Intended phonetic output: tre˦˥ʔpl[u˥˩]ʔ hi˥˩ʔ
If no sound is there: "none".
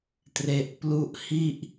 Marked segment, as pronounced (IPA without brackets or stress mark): u˥˩